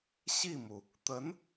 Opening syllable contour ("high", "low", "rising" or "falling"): falling